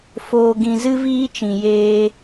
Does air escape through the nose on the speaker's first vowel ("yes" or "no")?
no